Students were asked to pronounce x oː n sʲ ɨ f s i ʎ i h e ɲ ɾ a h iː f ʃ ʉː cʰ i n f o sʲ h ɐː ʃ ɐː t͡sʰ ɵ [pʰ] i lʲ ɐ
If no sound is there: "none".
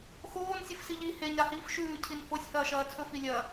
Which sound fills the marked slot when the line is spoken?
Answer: f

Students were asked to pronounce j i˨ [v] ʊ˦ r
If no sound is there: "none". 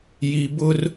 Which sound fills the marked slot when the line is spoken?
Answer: b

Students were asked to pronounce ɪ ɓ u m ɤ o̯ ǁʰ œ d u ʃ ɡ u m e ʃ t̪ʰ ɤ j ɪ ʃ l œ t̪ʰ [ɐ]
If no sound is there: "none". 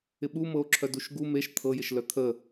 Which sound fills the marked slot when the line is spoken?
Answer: ə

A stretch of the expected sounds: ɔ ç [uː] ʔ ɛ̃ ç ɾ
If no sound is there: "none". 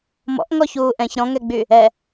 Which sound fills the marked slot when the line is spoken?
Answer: uː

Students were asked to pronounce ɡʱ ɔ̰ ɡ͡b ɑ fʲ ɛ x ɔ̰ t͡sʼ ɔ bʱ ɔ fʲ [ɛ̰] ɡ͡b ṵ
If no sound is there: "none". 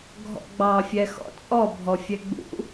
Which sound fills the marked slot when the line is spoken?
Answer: ɛ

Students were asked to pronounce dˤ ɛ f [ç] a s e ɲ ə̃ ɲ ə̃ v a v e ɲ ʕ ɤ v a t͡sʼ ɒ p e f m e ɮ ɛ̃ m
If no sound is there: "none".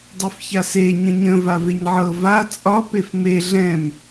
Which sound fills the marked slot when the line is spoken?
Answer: ç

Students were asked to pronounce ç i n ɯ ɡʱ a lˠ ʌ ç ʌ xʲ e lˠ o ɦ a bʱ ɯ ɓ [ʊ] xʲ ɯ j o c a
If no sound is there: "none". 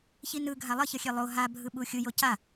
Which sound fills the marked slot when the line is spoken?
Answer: u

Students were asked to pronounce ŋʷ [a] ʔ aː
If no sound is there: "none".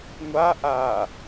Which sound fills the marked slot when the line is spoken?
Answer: a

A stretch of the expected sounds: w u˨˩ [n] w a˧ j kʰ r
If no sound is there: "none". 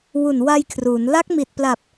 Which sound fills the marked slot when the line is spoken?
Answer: n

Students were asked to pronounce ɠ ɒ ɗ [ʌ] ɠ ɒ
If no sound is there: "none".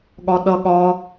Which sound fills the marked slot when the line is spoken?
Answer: ʌ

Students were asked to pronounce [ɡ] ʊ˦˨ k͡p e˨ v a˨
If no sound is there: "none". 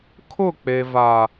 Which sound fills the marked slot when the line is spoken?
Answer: kʰ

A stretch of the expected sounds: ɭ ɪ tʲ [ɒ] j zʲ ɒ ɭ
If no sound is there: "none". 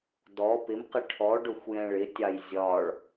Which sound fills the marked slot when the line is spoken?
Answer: ɑ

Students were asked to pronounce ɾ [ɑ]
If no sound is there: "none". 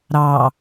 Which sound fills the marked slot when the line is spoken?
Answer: ɑ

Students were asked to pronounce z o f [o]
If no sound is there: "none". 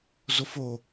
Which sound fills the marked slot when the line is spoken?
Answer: o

